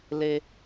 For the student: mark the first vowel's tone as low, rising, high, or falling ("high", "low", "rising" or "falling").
high